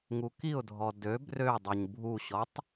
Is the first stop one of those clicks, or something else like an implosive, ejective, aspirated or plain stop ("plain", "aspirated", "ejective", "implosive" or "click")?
plain